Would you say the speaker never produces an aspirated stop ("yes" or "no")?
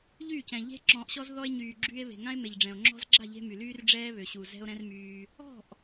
yes